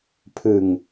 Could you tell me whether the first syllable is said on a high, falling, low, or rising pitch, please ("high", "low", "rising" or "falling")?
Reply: low